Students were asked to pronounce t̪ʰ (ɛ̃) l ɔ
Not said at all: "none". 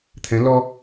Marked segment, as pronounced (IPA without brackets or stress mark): ɛ̃